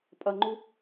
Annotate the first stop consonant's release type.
ejective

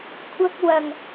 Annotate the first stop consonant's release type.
aspirated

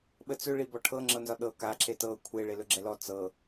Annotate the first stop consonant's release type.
implosive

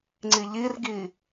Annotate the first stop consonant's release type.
click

